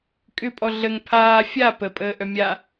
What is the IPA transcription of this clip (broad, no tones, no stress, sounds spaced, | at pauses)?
kʼ ʏ pʼ ɔ ɮ ə ŋ pʰ aː fʲ a p ə pʼ əː ʔ œ mʲ a